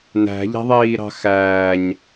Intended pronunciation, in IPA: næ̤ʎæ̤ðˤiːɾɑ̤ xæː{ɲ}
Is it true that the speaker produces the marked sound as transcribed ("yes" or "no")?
yes